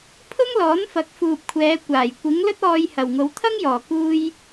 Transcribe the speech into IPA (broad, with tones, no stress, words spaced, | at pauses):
pʰʊ˥ŋlɔː˨˥nfɐ˨˥k̚ fuː˨p̚kʷʰɛː˨˧kʷaː˨˩j kʷɪ˨˥ŋlɵ˥t̚ ɔː˧jhɐ˨˩wŋo˨˧w t̪ʰɐ˥ŋjɔː˨˩kuː˧j